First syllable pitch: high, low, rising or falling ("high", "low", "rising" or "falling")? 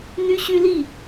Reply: high